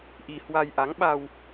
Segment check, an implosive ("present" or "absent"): present